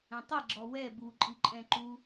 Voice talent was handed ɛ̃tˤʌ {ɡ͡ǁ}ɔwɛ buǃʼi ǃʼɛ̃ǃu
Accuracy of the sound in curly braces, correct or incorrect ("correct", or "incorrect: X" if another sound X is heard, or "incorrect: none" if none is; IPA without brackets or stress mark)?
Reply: correct